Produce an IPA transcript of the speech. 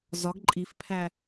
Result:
zɒɡ ǃʼifpʰæ

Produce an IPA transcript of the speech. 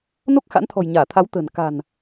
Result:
no˦˥k̚xa̰˧˥nt̪ʰɔ̤˨˩j ɲaː˧˩t̪ʰa˨˦w t̪ə̤˨˩n ka̤˨˩n

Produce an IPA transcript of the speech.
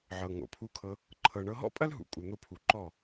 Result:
ʕɤ˨ŋo̰˨pʰu˧kʰɤ˧ | ǃʰɤ˨ɳɤ˧ ɦɔ̰˦pʼɐ˦lɦṵ˨ kʼu˨n̪o˧pʰu˨ǃɔ˦˨

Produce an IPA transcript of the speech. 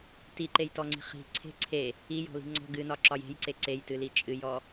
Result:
tiǃejtɔŋ͡ǀi̤ χi̤ ǀʰe̤ ǀʰe | ijɔ̤li̤ ŋ͡ǀɔ̤ ɡɨnɒǁɒj e̤jǀe ǀejtɨli t͡ʃʼɨjɔ

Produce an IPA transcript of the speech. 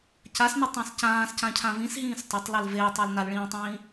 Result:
casnetˤẽs cãːscãcʰã vĩsɦĩːs tˤatˤlel veːtˤə˞l nalɭĩːtˤĩː

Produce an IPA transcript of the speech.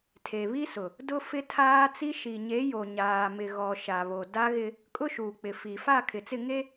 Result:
tʰe˨βi˦sʊ˨ | dʊ˦ fɪ˦tʰaː˦t͡si˦ ʃi˨ɲe˨˦jo˨ ɲaː˨mɪ˨ɣɔ˨ ʃa˨βo˨da˦ɣɪ˦ | kʼʊ˦ʃuː˨k͡pɪ˨fi˨ fa˦˨kʰɪ˨t͡sɪ˦˨ ŋe˦

